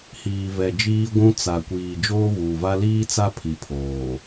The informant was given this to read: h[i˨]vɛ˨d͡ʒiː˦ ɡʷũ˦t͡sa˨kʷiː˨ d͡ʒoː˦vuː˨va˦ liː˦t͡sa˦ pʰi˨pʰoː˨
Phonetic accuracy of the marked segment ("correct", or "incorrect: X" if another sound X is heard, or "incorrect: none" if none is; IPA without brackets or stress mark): incorrect: iː˨